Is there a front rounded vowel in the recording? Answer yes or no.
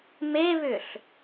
yes